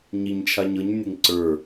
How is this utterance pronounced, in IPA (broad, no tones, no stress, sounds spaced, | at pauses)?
ɲ i ɲ t͡ʃʰ a ɲ ɤ ɲ nʲ e ŋ ǀ ə˞